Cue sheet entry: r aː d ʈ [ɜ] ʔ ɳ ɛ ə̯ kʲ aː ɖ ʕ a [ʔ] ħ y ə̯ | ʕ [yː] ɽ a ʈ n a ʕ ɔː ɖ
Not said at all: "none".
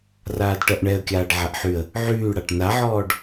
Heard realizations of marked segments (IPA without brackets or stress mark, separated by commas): ɜ, ʔ, yː